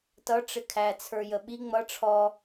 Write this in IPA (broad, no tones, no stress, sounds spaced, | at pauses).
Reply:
t ʌ ʈ͡ʂ ɪ kʰ æ t͡sʰ ə˞ j ə ɓ i ŋ͡m ʌ ʈ͡ʂʰ ɔ